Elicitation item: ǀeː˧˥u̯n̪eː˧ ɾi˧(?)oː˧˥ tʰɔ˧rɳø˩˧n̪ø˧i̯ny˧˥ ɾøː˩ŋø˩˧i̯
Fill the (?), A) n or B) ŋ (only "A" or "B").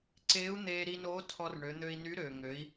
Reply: A